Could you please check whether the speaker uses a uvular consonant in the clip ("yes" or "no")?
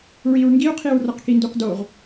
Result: yes